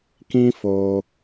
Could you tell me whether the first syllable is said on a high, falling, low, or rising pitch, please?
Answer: high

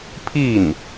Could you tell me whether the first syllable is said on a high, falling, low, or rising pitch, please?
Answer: falling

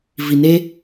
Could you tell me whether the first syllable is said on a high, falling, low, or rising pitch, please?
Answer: low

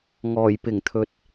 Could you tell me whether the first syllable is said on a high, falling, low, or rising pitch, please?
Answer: low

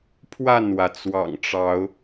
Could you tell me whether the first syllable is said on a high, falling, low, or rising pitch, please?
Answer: falling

